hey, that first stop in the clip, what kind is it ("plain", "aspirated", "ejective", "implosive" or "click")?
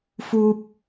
plain